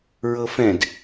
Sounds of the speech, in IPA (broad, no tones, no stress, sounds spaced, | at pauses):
ɹ ɤ f ɛ̃ d